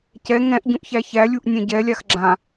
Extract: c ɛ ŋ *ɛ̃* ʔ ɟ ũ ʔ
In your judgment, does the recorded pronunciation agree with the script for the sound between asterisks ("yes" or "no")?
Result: yes